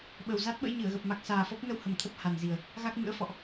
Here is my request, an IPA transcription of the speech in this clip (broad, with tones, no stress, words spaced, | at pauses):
ɓə˨˩wza˦˥t̚ɓə̰˧˥j ɲɨ˧˩ə̯ɣə˨˩p̚ma˨˩k̚ saː˨˩fɔ˦˥p̚nə˧whə˧˩m t̪ʰə˦˥p̚ha˨˩nzi˨˩ə̯ | ɣa˦˥k̚mɨ̰˧˥ə̯fɔ̰˧˨ʔ